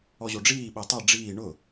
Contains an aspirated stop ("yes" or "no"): no